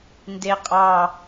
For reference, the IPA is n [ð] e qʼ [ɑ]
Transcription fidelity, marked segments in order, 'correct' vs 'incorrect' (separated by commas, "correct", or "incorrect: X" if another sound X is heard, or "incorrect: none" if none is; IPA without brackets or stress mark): incorrect: d, correct